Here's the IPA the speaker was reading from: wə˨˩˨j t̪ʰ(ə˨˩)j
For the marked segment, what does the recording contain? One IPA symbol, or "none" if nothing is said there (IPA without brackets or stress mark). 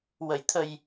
ə˨˩